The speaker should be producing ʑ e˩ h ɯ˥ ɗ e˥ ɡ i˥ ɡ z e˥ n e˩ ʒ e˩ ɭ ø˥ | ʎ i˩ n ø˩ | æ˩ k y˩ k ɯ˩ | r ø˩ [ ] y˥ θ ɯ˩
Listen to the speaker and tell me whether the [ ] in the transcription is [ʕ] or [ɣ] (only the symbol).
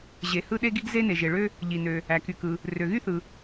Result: ɣ